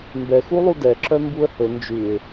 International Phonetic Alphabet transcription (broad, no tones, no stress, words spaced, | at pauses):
mbɛxulˠu dɛǁœ mbuə̯hɵ nd͡ʒʉɪ̯